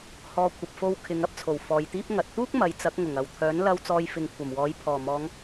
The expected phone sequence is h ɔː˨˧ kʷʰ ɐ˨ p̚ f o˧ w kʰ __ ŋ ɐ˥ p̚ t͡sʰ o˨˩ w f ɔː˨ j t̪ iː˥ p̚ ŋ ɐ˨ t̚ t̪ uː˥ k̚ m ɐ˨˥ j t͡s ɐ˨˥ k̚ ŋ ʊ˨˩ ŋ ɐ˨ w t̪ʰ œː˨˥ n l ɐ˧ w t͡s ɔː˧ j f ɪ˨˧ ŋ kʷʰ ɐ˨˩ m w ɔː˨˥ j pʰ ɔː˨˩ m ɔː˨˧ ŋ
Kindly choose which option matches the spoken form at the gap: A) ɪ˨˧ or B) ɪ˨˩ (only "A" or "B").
A